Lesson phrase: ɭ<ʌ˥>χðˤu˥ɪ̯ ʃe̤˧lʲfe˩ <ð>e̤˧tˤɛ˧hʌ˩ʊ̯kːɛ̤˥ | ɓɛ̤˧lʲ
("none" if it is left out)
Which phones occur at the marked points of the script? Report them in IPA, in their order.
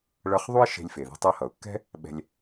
ʌ˧, ð

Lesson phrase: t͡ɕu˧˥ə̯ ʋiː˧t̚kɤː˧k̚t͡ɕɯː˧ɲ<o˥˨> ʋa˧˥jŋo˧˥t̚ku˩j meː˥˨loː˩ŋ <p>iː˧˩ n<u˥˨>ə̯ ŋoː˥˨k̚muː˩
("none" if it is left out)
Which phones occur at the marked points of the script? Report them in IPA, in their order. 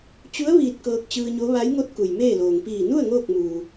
o˧˥, p, u˥˨

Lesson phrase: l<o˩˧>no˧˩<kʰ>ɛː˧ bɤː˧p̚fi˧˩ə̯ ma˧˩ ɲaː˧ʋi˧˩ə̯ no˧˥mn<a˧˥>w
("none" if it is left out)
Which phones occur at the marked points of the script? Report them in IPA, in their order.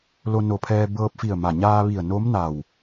o˧, pʰ, a˧˩

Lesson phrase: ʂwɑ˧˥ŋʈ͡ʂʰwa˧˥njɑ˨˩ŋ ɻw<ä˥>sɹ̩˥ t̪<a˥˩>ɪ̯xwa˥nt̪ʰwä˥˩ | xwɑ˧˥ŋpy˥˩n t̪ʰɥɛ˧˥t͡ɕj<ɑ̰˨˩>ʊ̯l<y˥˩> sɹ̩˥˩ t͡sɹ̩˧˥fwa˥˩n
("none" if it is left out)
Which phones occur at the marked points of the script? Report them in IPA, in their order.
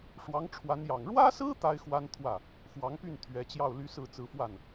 ä˥, a˥, ɑ˥˩, y˥

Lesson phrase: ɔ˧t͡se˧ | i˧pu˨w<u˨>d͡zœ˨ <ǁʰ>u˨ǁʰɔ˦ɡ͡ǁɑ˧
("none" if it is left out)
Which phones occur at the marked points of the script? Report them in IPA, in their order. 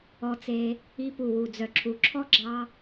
u˨, ǁʰ

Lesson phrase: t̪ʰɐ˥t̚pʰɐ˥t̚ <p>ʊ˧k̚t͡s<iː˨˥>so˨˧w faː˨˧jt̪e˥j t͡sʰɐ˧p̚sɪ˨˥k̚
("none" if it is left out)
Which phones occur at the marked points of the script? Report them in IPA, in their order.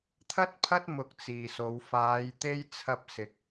m, iː˨

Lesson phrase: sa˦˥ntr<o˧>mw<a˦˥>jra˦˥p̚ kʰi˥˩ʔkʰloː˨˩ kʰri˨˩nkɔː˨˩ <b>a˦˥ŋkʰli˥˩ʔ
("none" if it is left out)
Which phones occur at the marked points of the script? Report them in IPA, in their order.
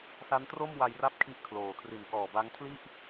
o˥˩, a˧, b

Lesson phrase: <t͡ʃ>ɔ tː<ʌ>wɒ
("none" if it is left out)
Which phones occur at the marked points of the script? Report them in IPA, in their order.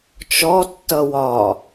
t͡ʃ, ʌ

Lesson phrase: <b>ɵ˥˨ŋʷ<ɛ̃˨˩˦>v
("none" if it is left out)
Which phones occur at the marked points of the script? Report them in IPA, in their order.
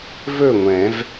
v, ɛ̃˨˩˦

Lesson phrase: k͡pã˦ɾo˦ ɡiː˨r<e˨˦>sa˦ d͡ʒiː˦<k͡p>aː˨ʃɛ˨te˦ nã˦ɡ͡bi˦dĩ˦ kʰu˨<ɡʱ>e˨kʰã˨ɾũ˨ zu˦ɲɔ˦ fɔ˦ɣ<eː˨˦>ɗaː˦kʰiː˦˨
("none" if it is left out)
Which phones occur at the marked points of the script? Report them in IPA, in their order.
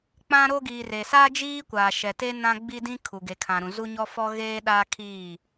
e˨, kʷ, ɡ, eː˦

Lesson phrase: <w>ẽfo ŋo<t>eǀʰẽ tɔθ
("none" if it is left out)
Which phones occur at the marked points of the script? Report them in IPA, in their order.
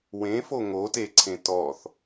w, t

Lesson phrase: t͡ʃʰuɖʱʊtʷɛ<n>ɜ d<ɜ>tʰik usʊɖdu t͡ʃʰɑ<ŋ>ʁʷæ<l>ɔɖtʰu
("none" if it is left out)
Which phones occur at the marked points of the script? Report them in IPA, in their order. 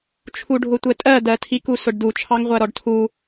tʼ, ɜ, ŋ, ɾ

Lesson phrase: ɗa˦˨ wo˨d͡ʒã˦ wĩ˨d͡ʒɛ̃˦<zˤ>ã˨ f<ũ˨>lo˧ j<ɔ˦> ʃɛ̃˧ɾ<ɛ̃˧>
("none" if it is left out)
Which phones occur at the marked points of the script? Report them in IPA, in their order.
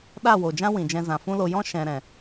z, ũ˦, ɔ̃˦, ɛ̃˨

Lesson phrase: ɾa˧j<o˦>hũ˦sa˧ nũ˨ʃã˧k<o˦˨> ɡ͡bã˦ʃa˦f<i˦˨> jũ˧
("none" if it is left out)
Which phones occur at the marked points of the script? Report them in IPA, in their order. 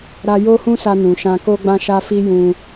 o˦, o˦, i˦

